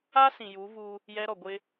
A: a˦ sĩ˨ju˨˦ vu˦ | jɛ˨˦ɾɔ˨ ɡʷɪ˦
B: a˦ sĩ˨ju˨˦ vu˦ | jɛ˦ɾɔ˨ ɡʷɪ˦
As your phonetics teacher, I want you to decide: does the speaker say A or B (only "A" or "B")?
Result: B